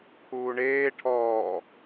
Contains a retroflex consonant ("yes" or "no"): yes